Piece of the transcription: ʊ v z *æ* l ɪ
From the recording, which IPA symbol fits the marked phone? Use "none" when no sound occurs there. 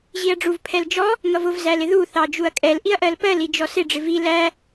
æ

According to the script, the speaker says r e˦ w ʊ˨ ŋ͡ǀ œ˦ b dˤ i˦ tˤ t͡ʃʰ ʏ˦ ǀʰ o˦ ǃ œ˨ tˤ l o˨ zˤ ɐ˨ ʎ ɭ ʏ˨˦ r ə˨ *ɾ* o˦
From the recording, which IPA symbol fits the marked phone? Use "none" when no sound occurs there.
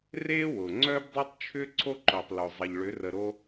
ɾ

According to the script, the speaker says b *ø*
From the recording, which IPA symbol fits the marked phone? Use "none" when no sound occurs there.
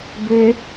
ø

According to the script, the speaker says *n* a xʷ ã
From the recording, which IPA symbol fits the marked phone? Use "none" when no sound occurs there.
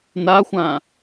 n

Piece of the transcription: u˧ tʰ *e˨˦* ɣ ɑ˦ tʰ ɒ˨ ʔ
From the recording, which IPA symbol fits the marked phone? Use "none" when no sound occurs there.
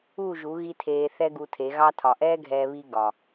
e˨˦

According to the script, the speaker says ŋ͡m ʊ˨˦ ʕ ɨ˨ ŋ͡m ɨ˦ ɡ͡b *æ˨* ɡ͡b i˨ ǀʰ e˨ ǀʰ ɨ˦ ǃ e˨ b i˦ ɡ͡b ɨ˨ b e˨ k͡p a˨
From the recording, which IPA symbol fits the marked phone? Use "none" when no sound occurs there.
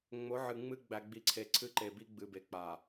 æ˨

